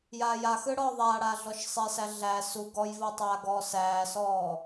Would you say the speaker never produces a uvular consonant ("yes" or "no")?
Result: yes